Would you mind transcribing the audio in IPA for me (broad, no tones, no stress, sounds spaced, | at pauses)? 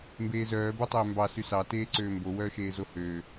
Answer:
m b eː z œː b o tˤ øː m b ɑ s y s ɑ t eː ǀ øː m b o w œː ʃ eː z o h øː